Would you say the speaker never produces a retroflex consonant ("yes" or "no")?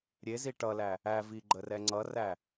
no